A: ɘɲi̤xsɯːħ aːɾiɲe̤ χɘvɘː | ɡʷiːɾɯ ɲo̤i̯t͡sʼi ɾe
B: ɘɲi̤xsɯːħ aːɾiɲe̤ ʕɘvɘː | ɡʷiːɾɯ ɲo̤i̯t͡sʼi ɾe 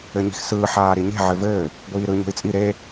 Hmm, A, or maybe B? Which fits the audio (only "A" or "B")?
B